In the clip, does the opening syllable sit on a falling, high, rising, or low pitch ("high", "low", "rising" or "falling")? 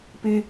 high